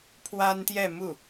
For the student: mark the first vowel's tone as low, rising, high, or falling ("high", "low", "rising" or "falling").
high